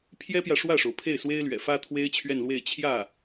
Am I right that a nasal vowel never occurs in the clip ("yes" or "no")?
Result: yes